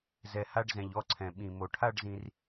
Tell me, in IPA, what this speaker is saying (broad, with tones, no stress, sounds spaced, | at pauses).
z ɛ˩ h a˧ ɖ z ɛ̃˩ ʎ ɔ˧ ǀʰ ɛ̃˩ ɓ ĩ˩ m o˩ ʈʰ a˥˧ ɖ z ĩ˧ r